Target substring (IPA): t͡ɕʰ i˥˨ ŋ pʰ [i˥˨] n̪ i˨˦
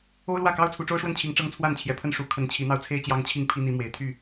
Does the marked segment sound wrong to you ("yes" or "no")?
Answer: yes